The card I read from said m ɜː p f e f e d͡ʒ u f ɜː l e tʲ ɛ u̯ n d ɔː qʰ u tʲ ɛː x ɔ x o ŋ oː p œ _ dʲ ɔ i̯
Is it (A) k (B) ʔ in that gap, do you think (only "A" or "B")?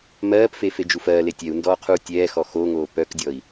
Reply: A